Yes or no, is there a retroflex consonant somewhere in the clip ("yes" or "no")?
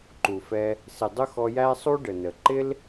yes